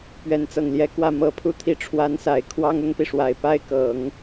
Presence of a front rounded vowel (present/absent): absent